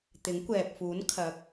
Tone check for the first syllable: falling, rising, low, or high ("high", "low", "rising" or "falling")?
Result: rising